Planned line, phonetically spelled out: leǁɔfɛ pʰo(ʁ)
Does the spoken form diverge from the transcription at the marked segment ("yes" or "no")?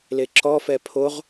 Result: no